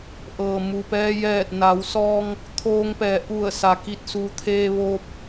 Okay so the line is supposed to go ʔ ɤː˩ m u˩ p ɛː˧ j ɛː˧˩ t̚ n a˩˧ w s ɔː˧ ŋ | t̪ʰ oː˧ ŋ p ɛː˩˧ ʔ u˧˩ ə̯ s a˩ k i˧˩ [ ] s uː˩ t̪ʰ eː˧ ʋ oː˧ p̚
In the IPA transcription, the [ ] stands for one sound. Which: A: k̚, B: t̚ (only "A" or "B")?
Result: B